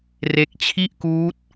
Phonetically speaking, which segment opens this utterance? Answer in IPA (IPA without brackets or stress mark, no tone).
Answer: r